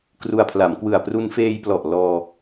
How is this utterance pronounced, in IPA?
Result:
k r u˧ a̯ pʰ l a˩˦ m k w ɯ˨˩ a̯ p r u˧ n f eː˧ j p l ɔ˨˩ ʔ l ɔː˧

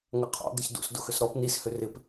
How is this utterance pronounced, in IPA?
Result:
ŋ ɐ qʰ ɔ̰ d̪ ɪ ç d ṵ s d ʊ x ʏ s ɾ ɔ p n i s h ʏ r ɪ p

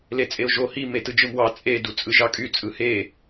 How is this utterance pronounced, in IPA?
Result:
l e t͡sʼ e ʊ̯ ʒ o h i m e t ɯ d͡ʒ ɯ m w ɑ t͡sʼ e d u t͡sʼ ɯ ʒ ɑ kʼ y t͡sʼ ɯ h e

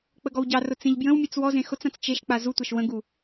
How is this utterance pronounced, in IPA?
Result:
k͡p ə ɡ ɔ w ɟ ɑ r ʊ t͡s ẽ ʎ b j ə̃ w mʲ e t͡s w ɔ z ẽ x ʊ t͡s ã t͡s t͡ʃ e ʃ k͡p a z u tʷ a ʃ w ə̃ ɡ u

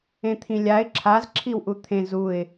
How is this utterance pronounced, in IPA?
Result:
ẽ t̪ʰ ĩ lʲ a ɪ̯ ǁʰ a z ǁʰ i w ʔ u t̪ʰ ẽ z u ɪ̯

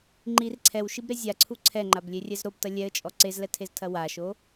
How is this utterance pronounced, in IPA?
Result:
ŋ͡ǃ i r ǀʰ ɛ w ʃ i b ɾ e zʲ a ǀʰ u ǀʰ ɛ ŋ͡ǃ a b lʲ e rʲ ɛ z ɾ o b t ɐ lʲ ɛ ə̯ t͡ʃʼ ɔ ǀ e z l ɛ tʰ e z tʰ ɐ w a ʃ o

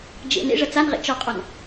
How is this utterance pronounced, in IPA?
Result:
d͡ʒ ḛ n ḛ ʐ ɐ t͡s a n ʁ ḛ t͡ʃ ɔ qʼ ɔ n

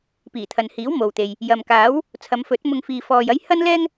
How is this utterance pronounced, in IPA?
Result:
p iː˨˩ t̪ʰ ɐ˨ n h iː˨˥ w m o˨ w t̪ e˨ j | j ɐ˨ m k aː˨˥ w | t͡sʰ ɐ˨˧ m f ɵ˨˥ t̚ m ʊ˧ ŋ f iː˧ f ɔː˧ j ɐ˥ j h ɐ˥ n l ɛː˥ ŋ

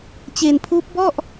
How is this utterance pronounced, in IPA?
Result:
t͡ɕ e˧ n pʰ uː˦˥ p̚ b ɔ˥˩ ʔ

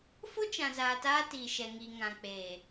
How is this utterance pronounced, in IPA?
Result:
f o˦ t͡ʃ ã˨ z aː˨ t aː˧ t iː˨ ʃ ɛ˨ ŋ iː˨ ŋ ã˨ k͡p eː˨

